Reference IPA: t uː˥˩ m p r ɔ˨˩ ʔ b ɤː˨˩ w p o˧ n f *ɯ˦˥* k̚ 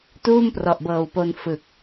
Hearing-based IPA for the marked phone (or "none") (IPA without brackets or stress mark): ɯ˨˩